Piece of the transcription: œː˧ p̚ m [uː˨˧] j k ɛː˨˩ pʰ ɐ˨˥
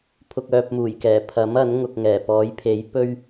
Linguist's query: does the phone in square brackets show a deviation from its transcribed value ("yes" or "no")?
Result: yes